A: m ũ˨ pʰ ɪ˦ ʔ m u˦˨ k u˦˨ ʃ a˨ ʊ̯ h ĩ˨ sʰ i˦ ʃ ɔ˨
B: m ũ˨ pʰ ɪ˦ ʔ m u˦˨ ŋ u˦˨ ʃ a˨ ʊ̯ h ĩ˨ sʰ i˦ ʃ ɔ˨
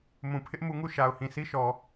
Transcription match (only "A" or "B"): B